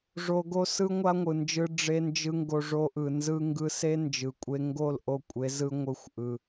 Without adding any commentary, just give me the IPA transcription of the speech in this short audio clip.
ʐo˧ ɡo˦sɯ˦ŋʷa˦ŋʷɯ˨ nd͡ʒɯ˧ ɖ͡ʐe˧nd͡ʒɯ˧ ŋɡo˧ʐo˧ʔɯ˨ nzɯ˦ ŋɡɯ˧se˦ nd͡ʒɯ˨kʷʼe˦ ŋɡo˦˨l ʔo˦ kʷʼe˨˦ zɯ˦ŋʷɯ˦˨xʷʔɯ˧

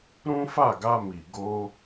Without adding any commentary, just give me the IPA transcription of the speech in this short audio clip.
ɾũ˦fa˦˨ɡa˧mi˨ ɡo˧

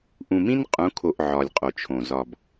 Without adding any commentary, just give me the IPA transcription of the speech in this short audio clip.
ʔũ˨mĩ˦nqʼũ˨˦kʰo˨ʔ ʕɒ˨lʲqʼo˨t͡ʃʰõ˨ zɒ˨b

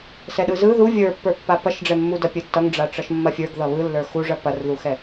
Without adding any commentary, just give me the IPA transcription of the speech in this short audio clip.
sɛɗɯzɯ ðu vʲə˞pːə˞pːa pɐʃɖ͡ʐɛmːudɐ pʲɯtːʌŋɖ͡ʐa ʈ͡ʂʌʃmːɐfʲə˞ɡ ðʌβɯlːə˞ xuʐɐ pɐrðuxɛ

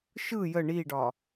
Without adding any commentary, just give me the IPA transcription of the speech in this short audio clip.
ʃɯ jə ɳiɖɒ

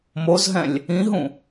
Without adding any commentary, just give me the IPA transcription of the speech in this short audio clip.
mozɦɛ̃lʲ | ĩɦũ

